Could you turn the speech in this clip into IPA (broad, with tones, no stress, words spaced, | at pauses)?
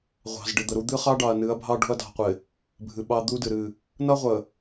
ʁʷɑ̤˨z ɖɪ˨ d̪ə˨ɾu˦ d̪ɨ˦χɑ˦ ɖɑ˨ɐ̯nɨ˨˦ɐ̯bʱɑ˦ ɖo̤˦ɐ̯dɑ̤˨qʷɪ˨ | bʱɨ˨ɓɑ˦ d̪u˦ dɨ˨ɾɨ˦˨ | nʌ˦ʁʷə˨